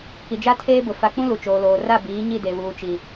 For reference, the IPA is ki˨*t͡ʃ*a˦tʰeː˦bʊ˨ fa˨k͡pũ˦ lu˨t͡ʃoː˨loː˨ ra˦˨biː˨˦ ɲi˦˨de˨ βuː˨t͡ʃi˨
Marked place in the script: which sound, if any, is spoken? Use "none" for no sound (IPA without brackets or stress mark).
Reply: d͡ʒ